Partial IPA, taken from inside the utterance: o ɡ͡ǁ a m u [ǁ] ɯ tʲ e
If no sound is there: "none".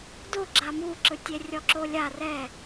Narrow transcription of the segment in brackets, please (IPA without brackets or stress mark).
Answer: ǁ